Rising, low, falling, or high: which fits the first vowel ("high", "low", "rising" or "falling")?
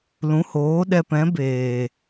rising